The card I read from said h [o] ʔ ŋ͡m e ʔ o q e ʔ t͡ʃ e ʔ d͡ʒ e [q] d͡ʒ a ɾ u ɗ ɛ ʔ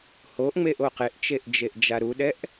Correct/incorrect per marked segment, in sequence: correct, incorrect: ʔ

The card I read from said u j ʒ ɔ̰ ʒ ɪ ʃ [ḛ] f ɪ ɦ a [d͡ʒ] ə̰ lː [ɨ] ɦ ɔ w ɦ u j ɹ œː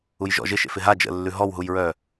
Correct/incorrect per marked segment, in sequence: correct, correct, incorrect: ʉ

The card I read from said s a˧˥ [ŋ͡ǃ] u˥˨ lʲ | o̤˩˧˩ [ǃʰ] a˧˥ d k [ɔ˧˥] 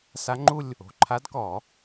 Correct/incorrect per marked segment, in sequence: correct, correct, incorrect: ɔ˨˩˦

